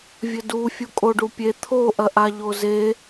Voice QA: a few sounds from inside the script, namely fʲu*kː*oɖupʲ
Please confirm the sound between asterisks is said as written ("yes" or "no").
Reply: no